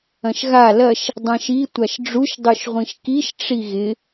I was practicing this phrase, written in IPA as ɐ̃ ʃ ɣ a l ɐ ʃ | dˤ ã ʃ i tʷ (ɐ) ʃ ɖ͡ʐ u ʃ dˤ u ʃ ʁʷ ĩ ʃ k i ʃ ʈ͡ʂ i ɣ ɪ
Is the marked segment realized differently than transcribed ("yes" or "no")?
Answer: yes